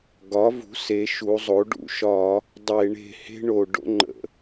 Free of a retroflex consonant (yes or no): no